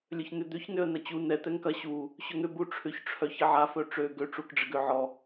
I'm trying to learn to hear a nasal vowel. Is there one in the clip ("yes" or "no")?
no